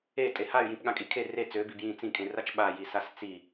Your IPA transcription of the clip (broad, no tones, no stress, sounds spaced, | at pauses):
e tʼ e h a y̯ j ĩ p ɠ ã kʼ i kʰ e r e t͡s ø b i b j ĩ t͡s ĩ kʼ ẽ r a t͡ʃ ɓ a j i s a s t͡s i